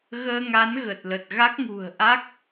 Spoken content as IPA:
ɣ əː˧ ŋ a˨˦ n ɣ ə˨˩ t̚ l ə˨˩ t̚ ɣ a˦˥ k̚ ŋ ṳ˨˩ ə̯ ʔ a˦˥ k̚

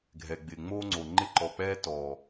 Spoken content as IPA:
ɡʱ ɛ˨ ɡ͡b ɪː˨ ŋ͡m oː˦ ŋ͡ǀ o˨ ŋ͡ǃ ɪ˧ ǃ ɔ˨ k͡p ɛː˧ t ɔː˨

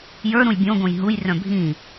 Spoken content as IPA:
j ə˞ ɾ ũ j bʲ õ ɡ õ j ɦ u j r œ̃ bʱ ĩ

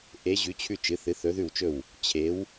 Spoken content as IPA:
ʔ e˩˧ ʑ ʉ˩˧ t͡ɕʰ ʉ˧˩ t͡ʃ ɨ˩˧ θ ɨ˩˧ θ ɵ˩˧ ð ʉ˧˩ w t͡ʃ ɵ˧˩ w | t͡ɕʰ e˩˧ w

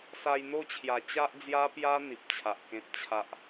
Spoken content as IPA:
s a˧ j n̪ o˥˧ t͡ɕʰ j a˨˩ t͡ɕ a˦ ʔ d͡z j a˦ p j a˦ n̪ i˨ p̚ t͡ɕʰ a˨ ʔ k ẽ˦ t̚ t͡ɕʰ a˦ ʔ

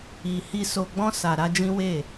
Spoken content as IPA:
i˧ h i˧ s o˧ ɡ͡b ɔ̃˦ s a˧ ɾ a˦ d͡ʒ ĩ˦ w e˦˨

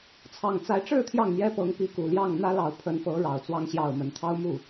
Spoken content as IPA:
t͡sʰ ɑ˨˩ ŋ t͡s a˨˦ ɪ̯ ʈ͡ʂ ɻ̩˥˨ t̪ʰ j ɑ˥˨ ŋ n̪ j ɛ˦ p ɤ˨˦ ŋ p i˨˦ k u˨˩ l j ɑ˥˨ ŋ n̪ ä˦ l ɑ˨˩ ʊ̯ pʰ ə˨˦ n f ɤ˨˦ ɻ ɑ˨˩ ʊ̯ t͡s w ɑ˦ ŋ ɕ j ɑ˥˨ ʊ̯ m ə˨˦ n t̪ʰ ɑ˦ ʊ̯ m u˥˨

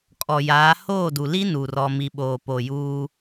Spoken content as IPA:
kʼ ɔ˨ j aː˨˦ h oː˦˨ d u˨ l i˦ n u˨ r ɔ˨ m i˨ ɓ oː˨ p o˨ j uː˦

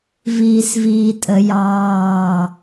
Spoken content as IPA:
v iː s v iː tʼ ə j ɑː

